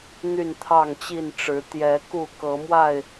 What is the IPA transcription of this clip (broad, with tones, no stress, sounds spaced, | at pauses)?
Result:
n̪ y˥˨ n t̪ʰ ɑ˥˨ ŋ t͡ɕ i˥˨ n ʈ͡ʂ ɻ̩˨˦ t̪ j ɛ˨˦ k u˥˨ k ɤ˨˦ m w a˥˨ ɪ̯